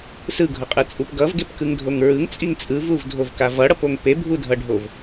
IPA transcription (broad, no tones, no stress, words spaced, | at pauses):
sɯɡʱʌqʼɯt͡sʼup ɡʌvɡepkɯŋdʱoŋ ɹɯŋt͡sʼiŋ t͡sʼɯvuvdʱovka vʌɽʌpoŋ pebʱudʱʌɖʱov